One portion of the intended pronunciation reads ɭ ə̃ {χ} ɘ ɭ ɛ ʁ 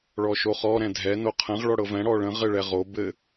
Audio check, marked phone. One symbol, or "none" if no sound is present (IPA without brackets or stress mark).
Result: ʁ